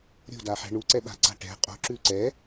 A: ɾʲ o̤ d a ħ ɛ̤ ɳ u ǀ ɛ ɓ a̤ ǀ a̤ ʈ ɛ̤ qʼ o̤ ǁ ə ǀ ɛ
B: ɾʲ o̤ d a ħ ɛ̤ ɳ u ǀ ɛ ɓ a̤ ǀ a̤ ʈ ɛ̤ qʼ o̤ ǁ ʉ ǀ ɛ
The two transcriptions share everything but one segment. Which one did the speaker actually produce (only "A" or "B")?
B